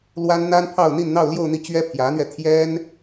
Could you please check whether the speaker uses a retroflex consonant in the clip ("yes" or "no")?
no